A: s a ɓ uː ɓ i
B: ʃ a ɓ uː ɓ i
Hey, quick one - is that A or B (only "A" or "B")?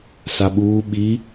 A